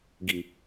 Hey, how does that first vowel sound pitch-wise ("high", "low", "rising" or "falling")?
low